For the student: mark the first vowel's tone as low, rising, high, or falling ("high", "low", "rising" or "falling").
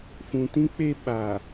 low